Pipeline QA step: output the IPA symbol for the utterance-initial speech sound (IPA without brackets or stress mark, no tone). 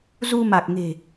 z